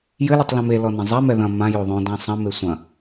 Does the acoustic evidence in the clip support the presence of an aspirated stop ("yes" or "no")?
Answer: no